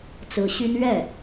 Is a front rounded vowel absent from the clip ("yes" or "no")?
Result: no